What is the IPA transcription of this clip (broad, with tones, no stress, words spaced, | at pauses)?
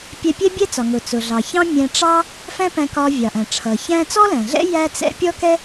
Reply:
pʲɛ˧pʲɛ˥bʲɛ˥t͡sɒ˩ ŋʊ˩t͡sʊ˩ɮɑ˩ çɑ̃˥mʲæ̃˧ʈ͡ʂɑ˥ | fæ̃˥pæ̃˧kɒ˧ vʲɑ˩ʔæ̃˩ʈ͡ʂʰʌ˩ çæ̃˥ t͡sɔ˥læ̃˩ɮɛ̰˥ jæ˥t͡sɛ̰˥ pʲɔ˥kɛ˥